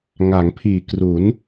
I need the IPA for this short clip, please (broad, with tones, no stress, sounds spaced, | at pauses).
ŋ a˩˦ ŋ pʰ iː˨˩ k r u˩˦ n